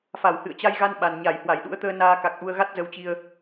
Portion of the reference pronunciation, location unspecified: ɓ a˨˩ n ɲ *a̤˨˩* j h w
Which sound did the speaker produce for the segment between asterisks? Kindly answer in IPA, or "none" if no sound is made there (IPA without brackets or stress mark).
a˧˩